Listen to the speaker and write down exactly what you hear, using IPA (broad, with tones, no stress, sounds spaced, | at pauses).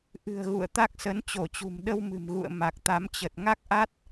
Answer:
ʔ ɨ̤˨˩ ə̯ ɣ ṵ˧˨ ə̯ t̪ a˦˥ k̚ s ə˨˦ n t͡ɕ o˧˩ t͡ɕ ṳ˨˩ m ɗ ə˧ w m ɨ̤˨˩ m ɣ ṵ˧˨ ə̯ m a˨˩ k̚ t̪ a˨˦ m t͡ɕ ə˨˩ t̚ ŋ a˦˥ k̚ ʔ a˦˥ t̚